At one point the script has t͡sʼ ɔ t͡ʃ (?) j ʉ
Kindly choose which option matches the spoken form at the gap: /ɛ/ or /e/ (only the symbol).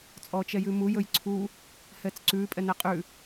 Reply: ɛ